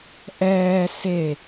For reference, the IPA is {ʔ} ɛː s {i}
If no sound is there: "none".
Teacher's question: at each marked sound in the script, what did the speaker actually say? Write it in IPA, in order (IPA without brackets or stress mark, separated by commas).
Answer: ʔ, e